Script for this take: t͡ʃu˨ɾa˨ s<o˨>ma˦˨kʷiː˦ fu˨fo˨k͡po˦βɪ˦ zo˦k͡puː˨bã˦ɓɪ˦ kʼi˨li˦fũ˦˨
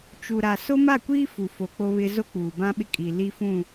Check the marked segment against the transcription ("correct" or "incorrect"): incorrect